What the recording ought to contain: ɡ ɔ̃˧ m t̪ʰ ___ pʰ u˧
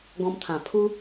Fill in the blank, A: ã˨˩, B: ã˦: A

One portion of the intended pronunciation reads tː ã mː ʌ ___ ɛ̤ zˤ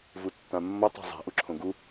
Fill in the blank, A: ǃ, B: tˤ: B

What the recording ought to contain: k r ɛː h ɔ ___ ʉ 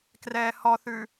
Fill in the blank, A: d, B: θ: B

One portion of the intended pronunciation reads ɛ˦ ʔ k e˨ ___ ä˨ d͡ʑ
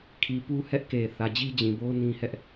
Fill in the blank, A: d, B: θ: B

